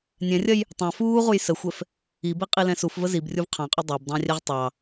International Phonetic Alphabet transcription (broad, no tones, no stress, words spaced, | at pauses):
nʲɛ̃rʲɐj | tˤɑ̃ fuːʁuj səxʷɛf | ibiqʼilɛ̃ sufvə zibrʲuv qʰɑ̃qʼo dˤɑbdˤɑ̃rʲɛʁ tˤɑ